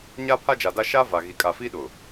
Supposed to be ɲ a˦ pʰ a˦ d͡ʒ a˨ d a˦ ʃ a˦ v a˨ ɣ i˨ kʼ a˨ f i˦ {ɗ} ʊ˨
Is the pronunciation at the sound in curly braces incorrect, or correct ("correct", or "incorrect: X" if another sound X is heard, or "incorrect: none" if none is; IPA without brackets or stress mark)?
correct